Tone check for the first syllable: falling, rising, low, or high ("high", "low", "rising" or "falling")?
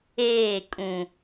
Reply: falling